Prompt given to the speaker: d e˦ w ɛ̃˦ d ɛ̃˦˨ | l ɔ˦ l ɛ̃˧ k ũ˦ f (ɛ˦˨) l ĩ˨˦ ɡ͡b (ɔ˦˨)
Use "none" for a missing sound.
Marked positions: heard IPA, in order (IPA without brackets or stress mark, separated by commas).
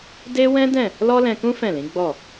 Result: ɛ̃˦˨, ɔ˦˨